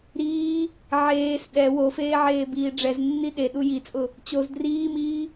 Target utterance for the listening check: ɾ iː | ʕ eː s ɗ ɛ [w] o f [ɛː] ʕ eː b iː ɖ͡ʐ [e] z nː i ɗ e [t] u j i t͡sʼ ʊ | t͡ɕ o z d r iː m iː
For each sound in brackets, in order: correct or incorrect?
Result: correct, incorrect: eː, incorrect: ɛ, incorrect: ɗ

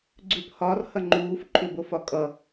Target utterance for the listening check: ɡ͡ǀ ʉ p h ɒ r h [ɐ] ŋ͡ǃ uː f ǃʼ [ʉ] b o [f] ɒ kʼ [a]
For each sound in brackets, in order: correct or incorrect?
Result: correct, correct, correct, incorrect: ʌ

